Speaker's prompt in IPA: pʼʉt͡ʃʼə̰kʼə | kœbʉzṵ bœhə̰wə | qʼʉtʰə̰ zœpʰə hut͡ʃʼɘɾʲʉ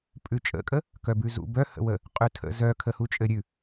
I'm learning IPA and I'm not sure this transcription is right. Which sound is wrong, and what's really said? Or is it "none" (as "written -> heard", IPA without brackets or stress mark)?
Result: pʰ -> kʰ